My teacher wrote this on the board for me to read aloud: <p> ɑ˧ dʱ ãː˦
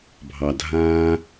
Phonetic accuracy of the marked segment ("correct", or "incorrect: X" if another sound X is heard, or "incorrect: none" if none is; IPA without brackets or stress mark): incorrect: bʱ